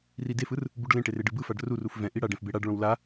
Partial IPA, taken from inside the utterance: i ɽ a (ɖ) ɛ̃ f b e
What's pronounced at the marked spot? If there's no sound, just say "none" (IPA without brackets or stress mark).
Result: ɖ